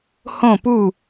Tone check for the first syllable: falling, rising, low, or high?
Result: falling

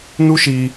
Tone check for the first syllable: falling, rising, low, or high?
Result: high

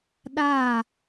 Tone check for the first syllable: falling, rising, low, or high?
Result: falling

